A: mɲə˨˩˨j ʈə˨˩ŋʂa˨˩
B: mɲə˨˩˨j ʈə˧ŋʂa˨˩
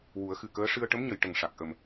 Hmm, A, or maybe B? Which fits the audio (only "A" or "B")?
A